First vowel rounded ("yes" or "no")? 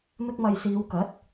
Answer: no